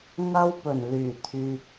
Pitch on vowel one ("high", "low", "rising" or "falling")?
high